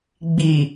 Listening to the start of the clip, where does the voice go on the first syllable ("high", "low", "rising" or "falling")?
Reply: low